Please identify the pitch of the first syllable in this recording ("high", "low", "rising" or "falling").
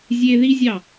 high